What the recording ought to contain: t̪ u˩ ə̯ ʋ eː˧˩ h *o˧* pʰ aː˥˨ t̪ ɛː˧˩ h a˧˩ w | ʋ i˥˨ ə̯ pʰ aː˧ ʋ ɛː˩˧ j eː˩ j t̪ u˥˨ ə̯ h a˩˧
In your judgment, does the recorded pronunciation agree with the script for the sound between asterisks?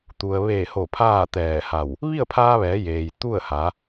no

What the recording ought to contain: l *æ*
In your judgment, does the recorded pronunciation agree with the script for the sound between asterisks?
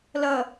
no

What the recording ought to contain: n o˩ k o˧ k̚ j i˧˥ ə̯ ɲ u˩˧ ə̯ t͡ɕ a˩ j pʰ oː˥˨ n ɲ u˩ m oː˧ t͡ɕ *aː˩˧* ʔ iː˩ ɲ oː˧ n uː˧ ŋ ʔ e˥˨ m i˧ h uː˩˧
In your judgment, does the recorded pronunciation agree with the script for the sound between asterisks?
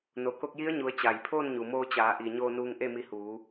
yes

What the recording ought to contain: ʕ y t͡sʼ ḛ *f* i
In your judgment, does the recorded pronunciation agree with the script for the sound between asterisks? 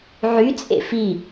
yes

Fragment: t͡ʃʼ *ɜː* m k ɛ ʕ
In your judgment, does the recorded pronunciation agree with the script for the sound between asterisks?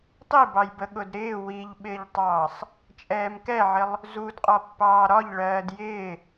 no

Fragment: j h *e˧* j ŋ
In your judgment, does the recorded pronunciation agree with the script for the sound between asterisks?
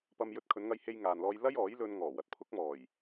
yes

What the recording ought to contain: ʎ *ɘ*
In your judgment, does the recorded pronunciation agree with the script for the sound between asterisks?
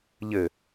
yes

